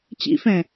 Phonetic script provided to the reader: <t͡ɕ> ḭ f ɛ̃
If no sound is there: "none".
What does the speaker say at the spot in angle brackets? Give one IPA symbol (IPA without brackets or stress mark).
t͡ɕ